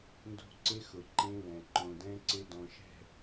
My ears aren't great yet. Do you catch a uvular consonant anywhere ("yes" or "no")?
no